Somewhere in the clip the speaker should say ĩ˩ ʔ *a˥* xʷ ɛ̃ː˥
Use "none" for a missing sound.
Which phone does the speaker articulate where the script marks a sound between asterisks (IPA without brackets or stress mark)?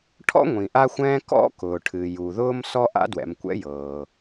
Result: a˥